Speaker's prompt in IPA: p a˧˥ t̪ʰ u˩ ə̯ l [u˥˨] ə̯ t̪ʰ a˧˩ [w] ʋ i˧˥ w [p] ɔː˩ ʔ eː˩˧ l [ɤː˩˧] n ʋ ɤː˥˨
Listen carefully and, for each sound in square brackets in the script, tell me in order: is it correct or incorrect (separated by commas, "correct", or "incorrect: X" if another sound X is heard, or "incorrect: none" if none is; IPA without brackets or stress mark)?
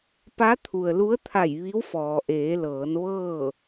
incorrect: u˧˥, incorrect: j, incorrect: f, correct